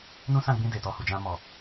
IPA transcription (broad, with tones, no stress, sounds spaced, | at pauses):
n ũ˦ s ã˦˨ ɡ͡b ĩ˧ d e˨ t ɔ˧ h u˨ d͡ʒ ã˧ m ɔ˨